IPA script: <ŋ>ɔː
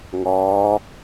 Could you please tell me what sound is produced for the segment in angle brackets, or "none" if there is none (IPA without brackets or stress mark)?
ŋ